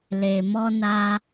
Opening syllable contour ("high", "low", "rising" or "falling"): low